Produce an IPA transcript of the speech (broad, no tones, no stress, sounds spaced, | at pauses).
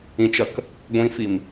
ĩ t͡ʃ ɐ k | ɡʷ ĩ f i m